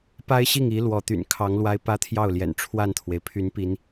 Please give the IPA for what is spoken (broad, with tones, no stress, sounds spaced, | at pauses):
p a˥ ɪ̯ ɕ i˥˩ ŋ i˧˥ l w ɔ˧˥ t̪ y̰˨˩ n kʰ ɑ˧˥ ŋ l w a˥ ɪ̯ p ä˥ t̪ʰ j ɑ˥˩ ʊ̯ l j ɛ̰˨˩ n ʈ͡ʂʰ w a˥˩ n t̪ʰ w e˩ ɪ̯ pʰ y˧˥ n p i˧˥ n